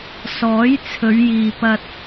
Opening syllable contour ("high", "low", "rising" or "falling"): rising